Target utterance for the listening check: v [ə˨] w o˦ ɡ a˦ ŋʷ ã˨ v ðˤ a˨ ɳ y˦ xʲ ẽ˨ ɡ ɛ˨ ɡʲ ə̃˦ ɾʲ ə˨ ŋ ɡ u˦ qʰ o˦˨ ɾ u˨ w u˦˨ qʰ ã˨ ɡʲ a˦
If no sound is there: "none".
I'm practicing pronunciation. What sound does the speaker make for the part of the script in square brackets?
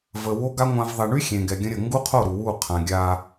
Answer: ə˨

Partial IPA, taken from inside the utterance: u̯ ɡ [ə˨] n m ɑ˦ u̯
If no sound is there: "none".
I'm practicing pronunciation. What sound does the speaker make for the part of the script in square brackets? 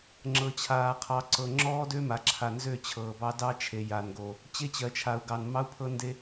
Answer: ɑ˨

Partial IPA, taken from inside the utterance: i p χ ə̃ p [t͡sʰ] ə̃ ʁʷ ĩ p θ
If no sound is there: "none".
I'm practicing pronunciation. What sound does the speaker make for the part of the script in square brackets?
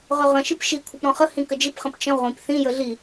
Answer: t͡ʃ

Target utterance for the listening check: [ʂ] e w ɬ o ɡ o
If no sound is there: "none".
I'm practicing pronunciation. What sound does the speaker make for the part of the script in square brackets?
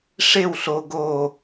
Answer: ʂ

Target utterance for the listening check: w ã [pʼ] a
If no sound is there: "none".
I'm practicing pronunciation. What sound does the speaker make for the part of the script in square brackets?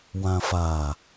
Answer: f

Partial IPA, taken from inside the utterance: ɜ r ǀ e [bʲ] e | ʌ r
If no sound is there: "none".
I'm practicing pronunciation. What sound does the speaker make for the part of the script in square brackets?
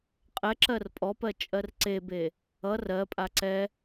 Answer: b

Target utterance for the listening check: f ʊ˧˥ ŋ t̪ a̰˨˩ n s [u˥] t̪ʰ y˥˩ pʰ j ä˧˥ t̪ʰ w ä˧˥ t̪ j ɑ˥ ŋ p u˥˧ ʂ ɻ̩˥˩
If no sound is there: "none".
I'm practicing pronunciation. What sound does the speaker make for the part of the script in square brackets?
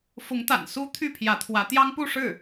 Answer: u˥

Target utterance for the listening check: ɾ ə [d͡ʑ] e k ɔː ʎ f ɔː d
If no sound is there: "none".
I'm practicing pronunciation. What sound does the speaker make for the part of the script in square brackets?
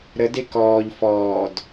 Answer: d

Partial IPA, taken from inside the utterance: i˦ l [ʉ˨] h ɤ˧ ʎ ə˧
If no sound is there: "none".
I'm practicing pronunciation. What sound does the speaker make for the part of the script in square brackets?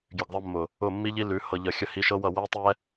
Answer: ʉ˨˦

